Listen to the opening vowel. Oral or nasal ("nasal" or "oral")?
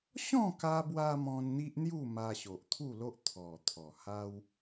nasal